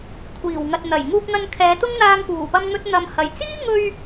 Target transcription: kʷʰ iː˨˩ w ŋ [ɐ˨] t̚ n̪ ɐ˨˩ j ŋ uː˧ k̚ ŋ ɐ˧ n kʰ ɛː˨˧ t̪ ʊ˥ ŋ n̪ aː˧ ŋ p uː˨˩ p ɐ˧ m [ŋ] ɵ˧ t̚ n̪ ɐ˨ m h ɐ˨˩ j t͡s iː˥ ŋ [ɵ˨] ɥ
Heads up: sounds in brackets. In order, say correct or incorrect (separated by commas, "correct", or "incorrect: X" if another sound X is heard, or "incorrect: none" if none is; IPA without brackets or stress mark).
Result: correct, correct, incorrect: ɵ˧